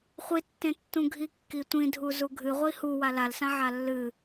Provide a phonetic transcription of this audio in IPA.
χʷ i tː ẽ tː ũ ɡʱ i kː i tʷ ĩ dʱ u z u ɡʱ ɨ ʁʷ i h u w a l a l s ã ʕ a lː ɨ

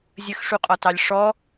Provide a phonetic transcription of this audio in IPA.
zʲ ə x ʂ u qʼ ɒ t ɑ lʲ ʂ ɔ

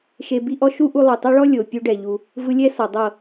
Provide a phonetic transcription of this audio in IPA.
ʃ e˧ b i˦ ʔ ɔ˦ ʃ u˦ ʔ u˧ lˠ ɯ˨ tˤ ɛ˦ ɭ ɔ˦ lʲ o˨ pʲ u˦ ɖ ɛ˨ ʎ u˧ | v ɯ˧ lʲ ɛ˦ s ɔ˨ dˤ ɤ˦˨

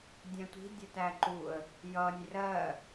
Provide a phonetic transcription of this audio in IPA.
dʲ æ̃ tʷ i̤ dʲ ɜ t æ ǃ u ə̯ | j ʌ nʲ r ɜ

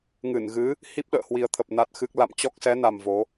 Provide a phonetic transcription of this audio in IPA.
ŋ ɨ˧˩ n ɣ ɨ˨˦ | h i˦˥ p̚ ɗ ə̰ː˧˨ h w i˨˩ ə̯ t̪ʰ ə˨˩ p̚ n a˦˥ t̚ x ɨ˦˥ k̚ l a̰˧˨ m t͡ɕ ɔ˦˥ k̚ s ɛ˨˦ n a˨˩ m v o˨˦

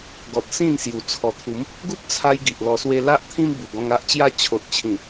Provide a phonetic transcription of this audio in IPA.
ɡ ɔ˨ t̚ s ĩ˥˧ n s j u˨˩ t͡sʰ ɔ˨˩ t̪ʰ u˨˦ m | ɡ u˦ p̚ t͡sʰ a˧ j ɡ i˨ ʔ l ɔ˧ s w e˦ l a˦ ʔ t̪ʰ ĩ˦ m b u˨˩ ɡ ɔ̃˧ ŋ a˦ ʔ t͡ɕ j a˦ t͡ɕʰ o˨ t̚ t͡ɕʰ ĩ˨˩

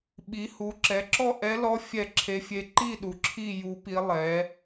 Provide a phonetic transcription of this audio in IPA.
ɓ i˩˥ h u˩˥ ǁ ɛ˩˥ ǁ ɔ˥˨ ʔ ɛ˧˥ l ɔ˧˥ fʲ ɛ˥˨ ǁʰ e˧˥ fʲ e˧˥ ǃ i˥˨ ɗ u˩˥ ǁʰ i˥˨ j u˧˥ p i˧˥ lˠ ɛ˩˥

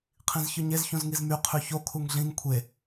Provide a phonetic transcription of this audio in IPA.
qʰ ĩ z ç ɯ ɲ e z ç ũ z ŋ i z m y qʰ y ç o kʰ u ŋ ɮ ĩ ŋ kʷʰ e

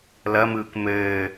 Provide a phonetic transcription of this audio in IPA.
l ɐ m ɯː k m ɘː

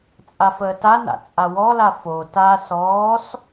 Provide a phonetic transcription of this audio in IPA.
t͡sʼ a f əː t a n a̰ t͡sʼ a w ɔ l a f o t a s ɔː s

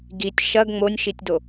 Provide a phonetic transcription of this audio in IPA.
ɡ i tʲ ʃ ɐ ɡ ŋ͡m o nʲ ʃ i tʲ d o

